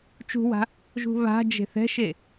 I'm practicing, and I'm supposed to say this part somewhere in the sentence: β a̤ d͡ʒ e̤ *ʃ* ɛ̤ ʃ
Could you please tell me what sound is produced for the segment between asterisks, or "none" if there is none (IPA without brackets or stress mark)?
θ